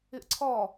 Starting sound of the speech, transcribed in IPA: ɪ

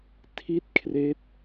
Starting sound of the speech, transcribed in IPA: tʰ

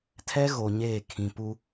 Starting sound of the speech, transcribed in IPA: tʰ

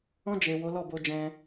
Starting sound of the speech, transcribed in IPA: ɔ̃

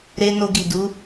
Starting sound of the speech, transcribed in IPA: ɾ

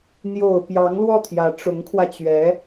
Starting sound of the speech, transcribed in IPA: n̪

